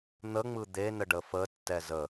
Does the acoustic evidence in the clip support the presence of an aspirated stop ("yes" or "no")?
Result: no